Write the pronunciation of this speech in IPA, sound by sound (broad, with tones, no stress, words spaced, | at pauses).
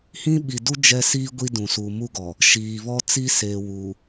hĩ˦ɓi˨du˦ d͡ʒɛ˦siː˦ ɡʷi˦dũ˨suː˨ mu˦ɡɔ˨ | ʃiː˨ βɔ˦ t͡si˦seː˨ wu˨